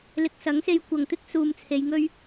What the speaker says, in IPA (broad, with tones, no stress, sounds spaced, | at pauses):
l ɪ˨ k̚ s ɐ˨˥ ŋ s e˧ j kʷ ɐ˨ ŋ t̪ ɪ˥ k̚ s uː˨ m t͡sʰ e˨˧ j ŋ ɵ˥ ɥ